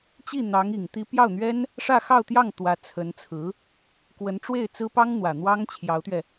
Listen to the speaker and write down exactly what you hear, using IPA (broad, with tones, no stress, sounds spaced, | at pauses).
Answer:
t͡ɕ i˥˩ n̪ ɑ˧˥ ŋ i˨˩ ŋ t̪ i˧˥ p j ɑ˥˩ ʊ̯ n̪ ɥ ɛ˥ n | ʂ ä˥˧ x ɑ˥˧ ʊ̯ t̪ j ɑ˥˩ ŋ t̪ w ä˧˥ t͡sʰ ə˧˥ n t͡sʰ ɹ̩˧˥ | k w ə˧˥ n ʈ͡ʂ w e˥˩ ɪ̯ t͡s ɹ̩˥ p ɑ˥ ŋ n̪ w ä˨˩ n̪ w ɑ˥ ŋ t͡ɕʰ j ɑ˧˥ ʊ̯ t̪ ɥ ɛ˧